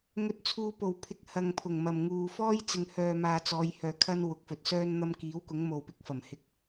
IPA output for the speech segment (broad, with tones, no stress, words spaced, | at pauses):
ŋɵ˨t̚t͡sʰuː˨ po˨˩wpʰɪ˨˥k̚ hɐ˨ŋpʰʊ˨˩ŋ mɐ˨˩mŋuː˨fɔː˥j t͡sɪ˨ŋhœː˨maː˨ t͡sɔː˨˧jhœː˨kʰɐ˥n wʊ˨˥k̚fɵ˨t̚sœː˥n n̪ɐ˧mkiː˨˥wkʊ˨˥ŋ mo˨wpɪ˧k̚fɐ˨˩mhɪ˧k̚